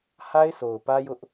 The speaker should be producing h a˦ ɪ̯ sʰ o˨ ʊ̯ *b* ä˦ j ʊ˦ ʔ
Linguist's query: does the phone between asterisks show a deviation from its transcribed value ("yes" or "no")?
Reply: yes